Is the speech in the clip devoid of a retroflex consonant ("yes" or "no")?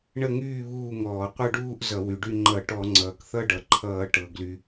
no